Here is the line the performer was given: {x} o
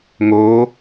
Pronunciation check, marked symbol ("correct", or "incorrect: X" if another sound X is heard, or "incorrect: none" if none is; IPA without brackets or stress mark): incorrect: ŋ